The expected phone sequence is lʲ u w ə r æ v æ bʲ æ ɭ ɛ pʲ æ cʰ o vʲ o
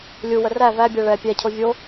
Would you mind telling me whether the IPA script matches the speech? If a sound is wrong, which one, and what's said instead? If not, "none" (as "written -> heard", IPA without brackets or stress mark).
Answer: none